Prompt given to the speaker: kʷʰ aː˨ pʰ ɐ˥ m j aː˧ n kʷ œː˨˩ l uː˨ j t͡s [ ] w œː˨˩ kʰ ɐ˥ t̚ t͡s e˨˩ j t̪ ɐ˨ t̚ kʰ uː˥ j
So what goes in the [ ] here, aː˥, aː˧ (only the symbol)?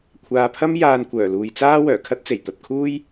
aː˥